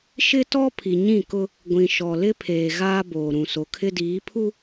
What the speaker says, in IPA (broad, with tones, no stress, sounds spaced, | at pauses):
ʃ ɪ˦ t ɔ˦ pʰ i˨ ɲ ĩ˦˨ k ʊ˦ | ɡʷ ĩ˨ ʃ ɔ˨ l ɪ˦ pʰ eː˨ ɣ aː˦ b oː˨ ɾ ũ˨ s o˨ kʰ ɪ˦ d iː˨˦ pʰ u˦